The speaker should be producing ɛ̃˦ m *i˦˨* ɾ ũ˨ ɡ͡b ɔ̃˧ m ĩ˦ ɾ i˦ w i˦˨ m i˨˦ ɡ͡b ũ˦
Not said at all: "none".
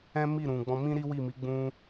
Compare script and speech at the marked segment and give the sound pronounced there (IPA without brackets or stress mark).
i˦˨